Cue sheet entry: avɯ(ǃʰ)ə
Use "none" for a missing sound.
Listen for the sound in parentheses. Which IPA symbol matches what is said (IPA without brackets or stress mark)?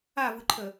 ǃʰ